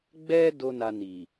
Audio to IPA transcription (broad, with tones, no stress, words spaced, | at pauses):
ɡ͡bɛ˦ do˦na˧ni˨